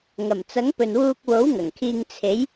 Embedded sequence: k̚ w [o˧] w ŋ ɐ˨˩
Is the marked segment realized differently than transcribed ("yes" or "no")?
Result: yes